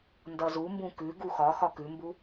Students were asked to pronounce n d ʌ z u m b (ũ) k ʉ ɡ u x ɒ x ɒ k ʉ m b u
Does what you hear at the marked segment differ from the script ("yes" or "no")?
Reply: no